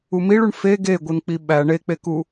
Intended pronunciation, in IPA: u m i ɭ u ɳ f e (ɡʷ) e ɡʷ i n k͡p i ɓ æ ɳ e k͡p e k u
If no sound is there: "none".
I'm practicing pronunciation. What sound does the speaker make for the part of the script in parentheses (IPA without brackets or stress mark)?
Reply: ɡ